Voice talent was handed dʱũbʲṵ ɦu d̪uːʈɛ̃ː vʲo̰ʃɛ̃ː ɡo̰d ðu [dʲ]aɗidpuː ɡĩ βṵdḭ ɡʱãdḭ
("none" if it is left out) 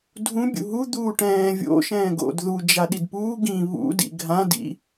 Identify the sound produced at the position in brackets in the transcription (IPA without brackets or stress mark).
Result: d͡ʒ